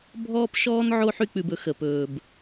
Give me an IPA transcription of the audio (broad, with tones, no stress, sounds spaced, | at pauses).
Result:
bʱ ɔː˦ p ʃ ɔː˦ n ʕ oː˦ ħ y˧ k͡p ʉ˨ b ɵ˨ x ə˨ p ɵː˨ b